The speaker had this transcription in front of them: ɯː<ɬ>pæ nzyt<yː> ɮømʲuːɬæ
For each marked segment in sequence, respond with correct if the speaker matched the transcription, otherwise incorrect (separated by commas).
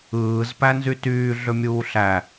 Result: incorrect, correct